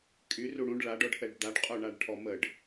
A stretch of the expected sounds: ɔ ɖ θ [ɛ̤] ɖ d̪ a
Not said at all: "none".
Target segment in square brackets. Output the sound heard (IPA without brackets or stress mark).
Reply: ɛ